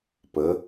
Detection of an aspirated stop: absent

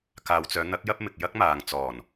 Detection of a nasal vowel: absent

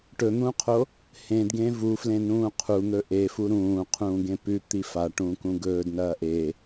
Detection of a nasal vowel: present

